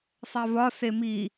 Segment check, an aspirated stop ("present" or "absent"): absent